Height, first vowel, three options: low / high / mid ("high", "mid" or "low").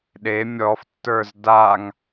mid